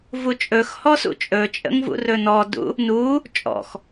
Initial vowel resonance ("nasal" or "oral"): oral